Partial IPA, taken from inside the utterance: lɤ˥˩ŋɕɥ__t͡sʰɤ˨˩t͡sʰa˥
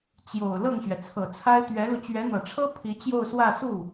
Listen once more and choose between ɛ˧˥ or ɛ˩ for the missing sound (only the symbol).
ɛ˩